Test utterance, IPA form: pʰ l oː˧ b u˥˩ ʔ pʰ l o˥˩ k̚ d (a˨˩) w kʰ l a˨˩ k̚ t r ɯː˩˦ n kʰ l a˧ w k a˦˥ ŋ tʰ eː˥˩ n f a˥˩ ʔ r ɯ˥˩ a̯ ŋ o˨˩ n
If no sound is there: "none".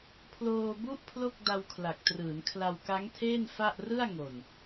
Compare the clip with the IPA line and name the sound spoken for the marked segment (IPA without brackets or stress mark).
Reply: a˧